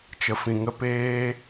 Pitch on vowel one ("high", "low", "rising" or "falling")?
low